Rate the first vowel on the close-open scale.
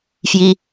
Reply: close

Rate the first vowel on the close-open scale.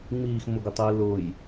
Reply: close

